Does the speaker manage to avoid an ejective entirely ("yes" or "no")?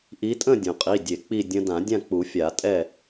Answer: no